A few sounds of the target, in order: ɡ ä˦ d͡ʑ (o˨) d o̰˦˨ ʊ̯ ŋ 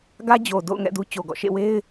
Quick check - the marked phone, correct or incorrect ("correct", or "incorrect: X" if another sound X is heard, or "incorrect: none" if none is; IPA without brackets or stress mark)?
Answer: correct